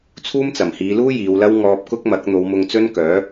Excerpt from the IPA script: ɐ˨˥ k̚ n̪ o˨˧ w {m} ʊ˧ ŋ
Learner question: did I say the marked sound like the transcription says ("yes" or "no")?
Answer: yes